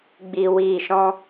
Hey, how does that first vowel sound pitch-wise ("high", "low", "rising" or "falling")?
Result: low